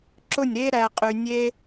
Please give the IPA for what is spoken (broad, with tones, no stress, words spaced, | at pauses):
ǁʊ˦˨nʲɾe˦ ɾæ˧qʼy˧ nʲe˦